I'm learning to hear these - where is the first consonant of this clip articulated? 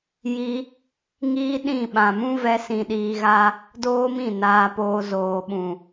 palate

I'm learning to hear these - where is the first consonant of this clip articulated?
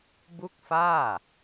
lips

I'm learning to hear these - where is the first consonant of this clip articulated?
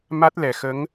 lips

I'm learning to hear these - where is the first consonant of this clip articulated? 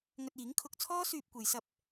velum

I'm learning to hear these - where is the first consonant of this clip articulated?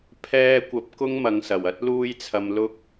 lips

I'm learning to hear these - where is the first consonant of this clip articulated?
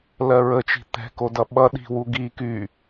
tongue tip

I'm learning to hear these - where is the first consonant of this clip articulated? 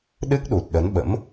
tongue tip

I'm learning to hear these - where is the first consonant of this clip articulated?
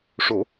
retroflex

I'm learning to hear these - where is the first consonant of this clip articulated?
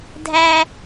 tongue tip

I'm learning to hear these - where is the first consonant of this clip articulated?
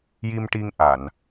palate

